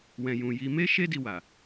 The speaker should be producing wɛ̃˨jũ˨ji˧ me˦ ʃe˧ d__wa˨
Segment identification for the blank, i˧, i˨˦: i˧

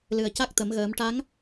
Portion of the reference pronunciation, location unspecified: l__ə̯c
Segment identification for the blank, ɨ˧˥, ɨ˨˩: ɨ˨˩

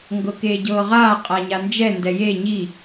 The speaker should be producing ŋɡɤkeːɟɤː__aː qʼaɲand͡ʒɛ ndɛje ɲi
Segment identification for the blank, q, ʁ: ʁ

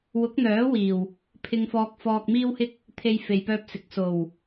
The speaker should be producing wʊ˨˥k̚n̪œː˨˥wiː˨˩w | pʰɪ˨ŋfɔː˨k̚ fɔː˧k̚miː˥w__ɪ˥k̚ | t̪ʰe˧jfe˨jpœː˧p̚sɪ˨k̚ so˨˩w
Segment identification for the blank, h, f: h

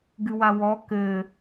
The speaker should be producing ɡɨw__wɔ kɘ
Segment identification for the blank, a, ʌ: a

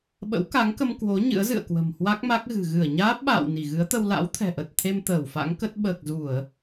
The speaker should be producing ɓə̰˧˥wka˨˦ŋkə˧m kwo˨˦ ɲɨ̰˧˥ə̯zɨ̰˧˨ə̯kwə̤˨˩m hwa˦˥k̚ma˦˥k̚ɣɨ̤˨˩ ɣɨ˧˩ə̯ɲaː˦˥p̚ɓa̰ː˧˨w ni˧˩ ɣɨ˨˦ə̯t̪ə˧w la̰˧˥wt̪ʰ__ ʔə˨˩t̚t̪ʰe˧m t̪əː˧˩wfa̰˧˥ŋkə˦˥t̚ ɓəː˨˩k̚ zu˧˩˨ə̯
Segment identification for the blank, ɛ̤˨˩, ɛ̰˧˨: ɛ̤˨˩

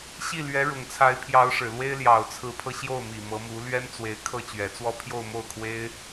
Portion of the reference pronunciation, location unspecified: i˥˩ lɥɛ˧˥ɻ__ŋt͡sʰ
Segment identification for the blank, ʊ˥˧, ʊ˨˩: ʊ˨˩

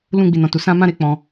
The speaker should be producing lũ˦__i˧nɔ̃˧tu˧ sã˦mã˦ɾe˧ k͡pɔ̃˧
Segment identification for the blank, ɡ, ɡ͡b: ɡ͡b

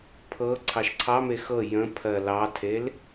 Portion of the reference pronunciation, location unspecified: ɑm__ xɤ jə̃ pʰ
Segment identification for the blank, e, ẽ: e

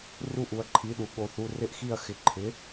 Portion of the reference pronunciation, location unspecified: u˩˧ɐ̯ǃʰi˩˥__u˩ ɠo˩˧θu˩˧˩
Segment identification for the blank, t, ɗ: ɗ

